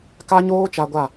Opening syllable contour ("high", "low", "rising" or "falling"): high